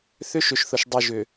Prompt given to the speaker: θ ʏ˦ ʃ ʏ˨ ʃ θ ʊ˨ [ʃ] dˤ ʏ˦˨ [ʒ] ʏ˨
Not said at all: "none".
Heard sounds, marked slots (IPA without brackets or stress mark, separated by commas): ʃ, ʒ